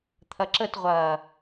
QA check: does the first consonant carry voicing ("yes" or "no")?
no